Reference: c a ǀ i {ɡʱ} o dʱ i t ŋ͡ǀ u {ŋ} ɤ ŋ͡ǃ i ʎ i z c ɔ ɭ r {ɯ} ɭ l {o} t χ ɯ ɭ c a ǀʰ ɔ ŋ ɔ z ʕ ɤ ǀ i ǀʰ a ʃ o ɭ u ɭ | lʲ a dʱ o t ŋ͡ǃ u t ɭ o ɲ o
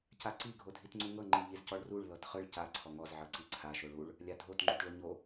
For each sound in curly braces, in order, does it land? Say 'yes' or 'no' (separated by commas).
yes, yes, no, no